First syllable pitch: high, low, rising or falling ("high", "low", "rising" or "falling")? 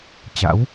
rising